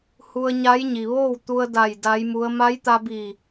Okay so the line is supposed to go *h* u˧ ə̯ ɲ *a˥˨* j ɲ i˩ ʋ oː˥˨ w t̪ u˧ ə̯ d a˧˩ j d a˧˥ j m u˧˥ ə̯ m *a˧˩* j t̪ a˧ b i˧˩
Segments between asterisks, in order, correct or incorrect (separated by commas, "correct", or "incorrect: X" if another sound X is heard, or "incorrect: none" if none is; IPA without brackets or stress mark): correct, incorrect: a˧˥, incorrect: a˧˥